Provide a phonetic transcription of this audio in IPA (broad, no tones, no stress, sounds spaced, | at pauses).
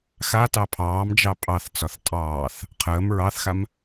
x a t ɑ pʰ ɑː m d͡ʒ ɑ pʼ ɑ θ t͡s ɒ θ tʼ ɑː θ | qʰ əː m ɹ ɑ θ x a m